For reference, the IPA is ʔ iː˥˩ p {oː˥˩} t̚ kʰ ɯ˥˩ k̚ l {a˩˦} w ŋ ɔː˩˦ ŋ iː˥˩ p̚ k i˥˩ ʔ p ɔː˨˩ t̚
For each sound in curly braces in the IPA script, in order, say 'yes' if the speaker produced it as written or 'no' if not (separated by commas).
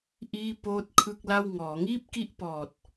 yes, no